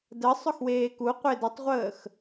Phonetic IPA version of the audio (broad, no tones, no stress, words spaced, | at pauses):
də sˤɵxweːku qʷedətˤʁʷəːx